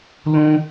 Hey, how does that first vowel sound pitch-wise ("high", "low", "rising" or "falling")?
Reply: high